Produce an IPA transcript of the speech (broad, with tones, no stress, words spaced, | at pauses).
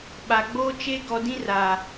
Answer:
ɓa˨ɡ͡boː˦t͡ʃe˦ ɡɔ˨dĩ˦ ra˨